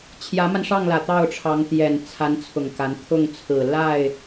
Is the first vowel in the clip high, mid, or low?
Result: low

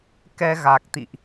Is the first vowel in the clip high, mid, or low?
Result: mid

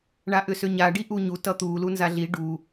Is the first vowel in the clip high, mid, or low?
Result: low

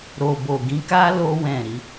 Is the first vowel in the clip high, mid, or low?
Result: mid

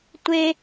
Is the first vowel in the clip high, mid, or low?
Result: mid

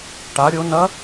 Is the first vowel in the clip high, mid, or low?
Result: low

